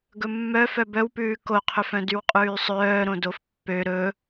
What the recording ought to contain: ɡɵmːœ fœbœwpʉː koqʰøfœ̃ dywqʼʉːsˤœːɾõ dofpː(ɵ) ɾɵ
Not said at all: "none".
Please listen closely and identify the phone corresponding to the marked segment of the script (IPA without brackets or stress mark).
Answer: ø